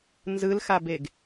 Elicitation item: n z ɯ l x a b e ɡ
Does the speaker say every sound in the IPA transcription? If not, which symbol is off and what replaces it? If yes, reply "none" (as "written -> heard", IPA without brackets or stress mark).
none